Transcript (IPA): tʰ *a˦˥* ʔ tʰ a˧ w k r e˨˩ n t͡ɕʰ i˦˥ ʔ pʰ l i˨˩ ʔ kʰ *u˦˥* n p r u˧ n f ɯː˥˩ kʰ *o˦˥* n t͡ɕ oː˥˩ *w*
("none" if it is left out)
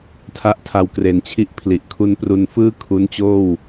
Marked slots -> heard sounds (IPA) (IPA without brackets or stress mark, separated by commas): a˦˥, u˦˥, u˦˥, w